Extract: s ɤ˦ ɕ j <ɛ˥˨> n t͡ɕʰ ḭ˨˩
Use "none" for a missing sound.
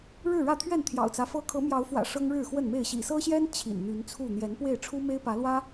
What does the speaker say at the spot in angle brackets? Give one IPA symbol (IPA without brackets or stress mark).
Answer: ɛ˦